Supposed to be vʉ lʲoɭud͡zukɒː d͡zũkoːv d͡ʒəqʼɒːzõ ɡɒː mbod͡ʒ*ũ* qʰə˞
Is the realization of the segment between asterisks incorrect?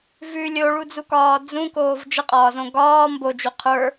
yes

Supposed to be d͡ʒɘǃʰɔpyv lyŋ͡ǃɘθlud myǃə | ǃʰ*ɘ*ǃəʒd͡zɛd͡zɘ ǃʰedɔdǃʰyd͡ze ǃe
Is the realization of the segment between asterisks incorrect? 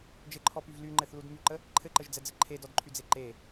no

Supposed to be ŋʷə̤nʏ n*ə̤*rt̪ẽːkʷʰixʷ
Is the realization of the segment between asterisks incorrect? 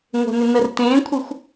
yes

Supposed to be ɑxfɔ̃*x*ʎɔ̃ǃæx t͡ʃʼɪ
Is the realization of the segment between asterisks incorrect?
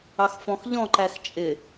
no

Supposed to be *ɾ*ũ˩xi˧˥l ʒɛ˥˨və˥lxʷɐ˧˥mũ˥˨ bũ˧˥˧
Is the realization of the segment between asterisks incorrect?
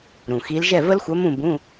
no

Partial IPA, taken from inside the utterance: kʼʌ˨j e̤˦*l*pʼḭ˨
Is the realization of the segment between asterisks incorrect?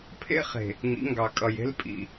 no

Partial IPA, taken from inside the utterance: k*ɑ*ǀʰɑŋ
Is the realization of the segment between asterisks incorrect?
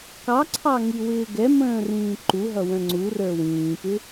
no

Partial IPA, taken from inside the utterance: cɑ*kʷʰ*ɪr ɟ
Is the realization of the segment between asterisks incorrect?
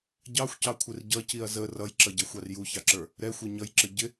no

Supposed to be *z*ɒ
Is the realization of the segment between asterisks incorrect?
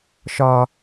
yes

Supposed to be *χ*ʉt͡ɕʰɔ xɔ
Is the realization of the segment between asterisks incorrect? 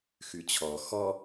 yes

